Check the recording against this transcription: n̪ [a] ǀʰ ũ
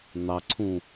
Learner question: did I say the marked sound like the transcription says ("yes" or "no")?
no